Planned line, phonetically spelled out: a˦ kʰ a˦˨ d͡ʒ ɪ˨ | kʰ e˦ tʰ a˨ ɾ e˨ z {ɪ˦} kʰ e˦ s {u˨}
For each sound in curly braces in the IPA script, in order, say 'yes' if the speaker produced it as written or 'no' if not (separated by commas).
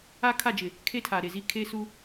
no, no